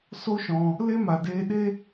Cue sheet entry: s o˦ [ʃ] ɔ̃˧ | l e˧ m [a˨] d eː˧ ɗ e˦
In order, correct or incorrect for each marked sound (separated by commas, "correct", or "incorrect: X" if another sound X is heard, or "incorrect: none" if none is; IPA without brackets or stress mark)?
correct, correct